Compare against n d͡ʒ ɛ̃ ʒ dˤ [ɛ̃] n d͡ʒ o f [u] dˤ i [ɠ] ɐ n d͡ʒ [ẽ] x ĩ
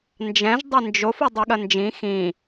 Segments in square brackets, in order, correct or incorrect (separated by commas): incorrect, correct, correct, incorrect